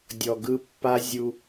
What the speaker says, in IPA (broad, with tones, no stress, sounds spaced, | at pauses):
dʲ ɔ˨ ɡ ɯ˦ pː a˦ zʲ u˦